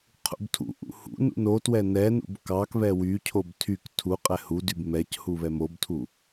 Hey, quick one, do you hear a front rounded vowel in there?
yes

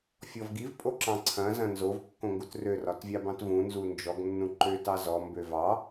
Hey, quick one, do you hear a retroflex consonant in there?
no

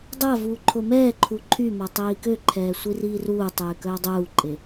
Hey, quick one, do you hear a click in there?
yes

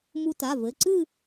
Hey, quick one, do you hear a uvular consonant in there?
no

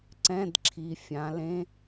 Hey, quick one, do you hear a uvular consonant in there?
no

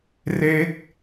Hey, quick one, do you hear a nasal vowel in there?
no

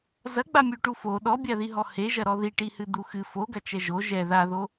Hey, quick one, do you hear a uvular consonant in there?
no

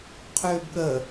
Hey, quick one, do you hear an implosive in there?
yes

